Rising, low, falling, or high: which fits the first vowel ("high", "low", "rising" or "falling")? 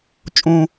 low